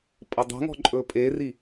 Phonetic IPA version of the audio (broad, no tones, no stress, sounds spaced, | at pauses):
pʼ ʌ dˤ e̤ ŋ ɔ̤ ǃʼ ɵ pʼ e r i